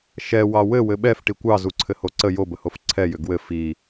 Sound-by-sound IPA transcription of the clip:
ʃ ɛ w ɑ w ɘ w ɘ ɓ ɛ f ʈ i kʷ ɑ z u ǀʰ ɘ h o ǀ ə j o b ə h o f ǀʰ ɛ j ʏ ɡ w ɘ f i

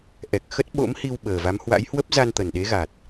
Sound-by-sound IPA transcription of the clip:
ʔ ɛ˨˩ k̚ x ə˦˥ t̚ ɓ o̰˧˥ m h i˧ w ɓ əː˨˩ v a˨˦ m h w a̰˧˥ j h w ə˦˥ p̚ z a˧ n t̪ ə˨˩ n ɗ e˨˦ ɣ a˨˩ t̚

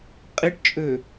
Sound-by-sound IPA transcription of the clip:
qʼ i ʈ t͡ʃʼ ø

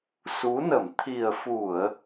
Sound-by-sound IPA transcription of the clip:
s u˨˦ n ə˧˩ m t̪ʰ i˨˩ ə̯ f u˧˩˨ ə̯

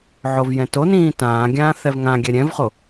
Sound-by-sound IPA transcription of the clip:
ʕ o v j ɛ̃ t o n ĩː t ãː ɡʲ ãː θ ɛ v ŋ ã ɡʲ ɛ ɾʲ ɛ̃ v χ o

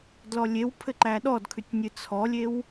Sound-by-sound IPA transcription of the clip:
d l ɔ lʲ e w pʰ ɘ ǃ æ ɗ ɔ d kʰ ʉ tʲ nʲ ɨ t͡sʰ ɔ lʲ e w

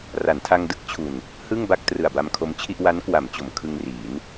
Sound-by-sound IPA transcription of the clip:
r a˩˦ n tʰ a˧ ŋ d ɯ˥˩ k̚ t͡ɕʰ u˨˩ n | h ɯ˥˩ ŋ b a˥˩ k̚ t r ɯ˨˩ a̯ b a˧ m kʰ o˧ m t͡ɕʰ i˥˩ ʔ w a˦˥ n k w a˩˦ m t͡ɕ o˩˦ m kʰ ɯ˧ ŋ r iː˩˦ n

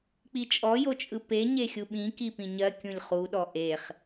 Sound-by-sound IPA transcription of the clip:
k͡p i t͡ʃʼ ɔ j o t͡ʃʼ ɯ p e ɲ e xʲ u ɓ ĩ k i p ĩ ɲ ɜ kʲ ũ lʲ χ u ɗ ɔ ʔ e χ

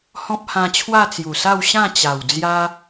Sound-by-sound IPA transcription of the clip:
h ɔ̃˦ p̚ h ã˧ t͡ɕʰ w a˥˧ t͡s j u˨˩ s a˥˧ w ɕ ã˥˧ t͡ɕ a˨˩ w d͡z j a˦

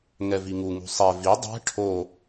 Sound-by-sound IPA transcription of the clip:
ŋ ɛ v i ŋ u ŋ ṳ sˤ ɛ v i dˤ ɛ̤ ʈʰ o

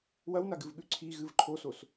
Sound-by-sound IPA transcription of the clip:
w ɐ w n a ɡ ɨ v ɠ ʉ ǀʰ i ɣ ɨ v ǃʰ o s o s

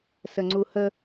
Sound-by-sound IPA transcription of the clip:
s ə ŋ͡ǀ u h ə

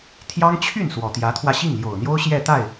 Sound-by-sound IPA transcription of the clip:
t̪ʰ j ɑ˥ ŋ t͡ɕʰ y˥˩ n s w ɔ˨˩ t̪ j ä˧˥ t̪ʰ w ä˧ ɕ i˥˩ ŋ l j o˨˩ ʊ̯ n̪ j o˥ ʊ̯ ɕ j ɛ˥˧ t̪ a˥˩ ɪ̯

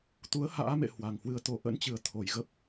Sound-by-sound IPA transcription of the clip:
t̪ u˨˦ ə̯ h a̰ː˧˥ m ḛ˧˨ h w a˨˩ ŋ h w ɨ˧ ə̯ t̪ o˧˩ ʔ ə̰˧˥ n t͡ɕ ɨ˨˩ ə̯ t̪ʰ o˨˩ j ɣ ə˦˥ p̚

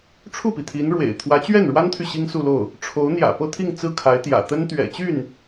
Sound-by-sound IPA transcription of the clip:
ʈ͡ʂʰ u˥˩ p i˩ t̪ʰ i˧˥ n ɻ w ḛ˨˩ ɪ̯ t̪ʰ w ä˧˥ t͡ɕ ɥ ɛ˥˩ n ɻ w a˥ n t̪ʰ y˨ ɕ i˥ ŋ s u˥˧ l o˥˩ ʊ̯ | ʈ͡ʂʰ o˧˥ ʊ̯ n̪ j ä̰˨˩ p ɤ˥˧ t̪ʰ i˥˧ ŋ t͡s ɹ̩˥˩ kʰ a˧˥ ɪ̯ t̪ j ä̰˨˩ t̪ ə˥ n t̪ ɥ ɛ̰˨˩ t͡ɕ y˥˩ n

